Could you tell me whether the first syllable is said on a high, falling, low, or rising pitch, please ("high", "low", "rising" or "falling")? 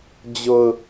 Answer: low